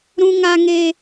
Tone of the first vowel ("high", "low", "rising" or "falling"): high